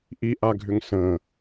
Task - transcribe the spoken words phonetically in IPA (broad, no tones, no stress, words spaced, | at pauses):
ʔiʔaɡʱʏŋ sə̃